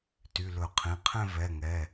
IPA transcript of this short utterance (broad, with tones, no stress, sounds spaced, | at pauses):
t y˩˧˩ l ɵ˧˩˧ qʰ ĩ˩˧˩ qʰ ɛ̃˥˧ v ɛ˩˧˩ ŋ ɛ˩˧˩